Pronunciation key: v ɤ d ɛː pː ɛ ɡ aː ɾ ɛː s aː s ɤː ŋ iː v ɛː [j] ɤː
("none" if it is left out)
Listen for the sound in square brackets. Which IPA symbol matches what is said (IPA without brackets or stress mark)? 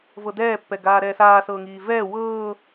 w